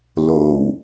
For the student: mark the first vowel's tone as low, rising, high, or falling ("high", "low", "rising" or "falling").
low